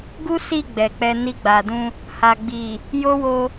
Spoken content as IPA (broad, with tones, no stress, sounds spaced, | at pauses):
ɡ u˦ s i˦˨ ɡ͡b ɛ˨ k͡p ɛ˧ n i˧ ɡ͡b a˨ d ũ˧ | h a˨ ɡ͡b i˨ | j o˦ w o˧